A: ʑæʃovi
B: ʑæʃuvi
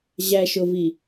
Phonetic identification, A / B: A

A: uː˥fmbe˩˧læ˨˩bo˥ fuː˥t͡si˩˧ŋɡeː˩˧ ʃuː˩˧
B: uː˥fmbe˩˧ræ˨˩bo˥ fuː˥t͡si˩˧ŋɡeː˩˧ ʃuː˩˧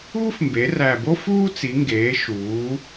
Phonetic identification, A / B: B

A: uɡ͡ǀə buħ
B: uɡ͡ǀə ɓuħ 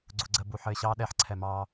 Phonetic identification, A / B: A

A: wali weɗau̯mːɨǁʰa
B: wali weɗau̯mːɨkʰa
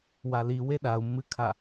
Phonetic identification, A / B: B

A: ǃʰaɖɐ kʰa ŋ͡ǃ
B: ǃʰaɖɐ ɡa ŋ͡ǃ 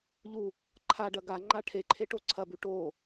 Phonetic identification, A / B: B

